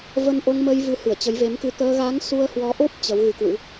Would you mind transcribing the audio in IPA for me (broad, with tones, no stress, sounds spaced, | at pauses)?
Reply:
v ə˧ n ʔ o˧ ŋ m ə˧ j v ɨ˨˦ h ɨ˧˩ ə̯ t͡ɕ ə˨˦ j v e˨˦ m k ɨ˧ t̪ əː˧ ɣ a˨˦ ŋ s u˧ ə̯ h w ɔ˨˦ ʔ o˦˥ p̚ t͡ɕ ə˨˦ w ɣ ɨ˨˦ k w ɨ̰˧˥